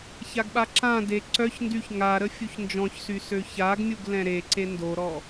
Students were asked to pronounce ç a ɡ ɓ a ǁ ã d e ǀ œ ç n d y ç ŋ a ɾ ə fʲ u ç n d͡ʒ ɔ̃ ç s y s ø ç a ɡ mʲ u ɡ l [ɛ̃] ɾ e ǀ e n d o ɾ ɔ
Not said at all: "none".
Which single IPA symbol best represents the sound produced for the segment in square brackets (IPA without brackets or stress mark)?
ɛ̃